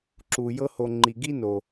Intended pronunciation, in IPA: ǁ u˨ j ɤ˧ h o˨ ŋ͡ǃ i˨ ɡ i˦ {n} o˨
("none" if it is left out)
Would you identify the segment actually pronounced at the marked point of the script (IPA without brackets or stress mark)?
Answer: n